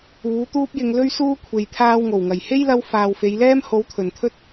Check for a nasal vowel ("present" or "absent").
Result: absent